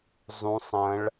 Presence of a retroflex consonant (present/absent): present